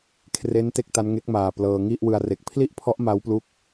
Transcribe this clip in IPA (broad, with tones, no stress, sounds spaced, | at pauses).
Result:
kʰ r e˦˥ n t e˦˥ k̚ t a˦˥ n ŋ e˦˥ k̚ m aː˨˩ p l ɤː˧ ŋ i˥˩ ʔ w ɯ˧ a̯ r e˨˩ k̚ pʰ l i˥˩ ʔ pʰ ɔ˦˥ ʔ m a˦˥ w p l u˦˥ k̚